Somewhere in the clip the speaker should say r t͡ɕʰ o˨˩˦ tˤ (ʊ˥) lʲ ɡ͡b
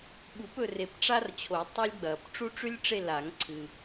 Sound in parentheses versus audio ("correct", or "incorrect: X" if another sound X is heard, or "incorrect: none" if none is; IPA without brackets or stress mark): incorrect: u˥